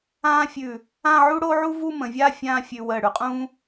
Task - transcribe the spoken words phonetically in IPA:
ã˥ fʲ ʉ˧˩ | ã˥˧ ʕ u˥ ɽ o˥ ʕ u˥ v u˥˧ m ə̃˩˧ vʲ a˥˧ fʲ ãː˥˧ fʲ ʉ˧ w əː˧˩ ɽ ʉ˩˧ qʼ ũː˥

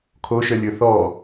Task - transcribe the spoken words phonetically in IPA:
kʰ o ʃ œ lʲ ɵ θ ɔ

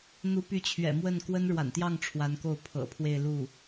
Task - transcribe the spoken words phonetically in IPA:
n̪ u˧˥ p y˧˥ t͡ɕʰ ɥ ɛ̰˨˩ m w ə˥˩ n k w ə˥ n ɻ w a̰˨˩ n t̪ j ɑ˥˩ ŋ ʈ͡ʂʰ w a˧˥ n k o˥˩ ʊ̯ pʰ ɤ̰˨˩ pʰ w e˥˧ ɪ̯ l u˥˩

